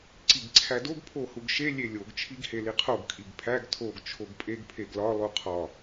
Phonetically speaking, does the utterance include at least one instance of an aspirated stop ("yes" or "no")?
yes